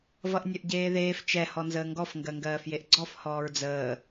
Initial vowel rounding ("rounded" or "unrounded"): unrounded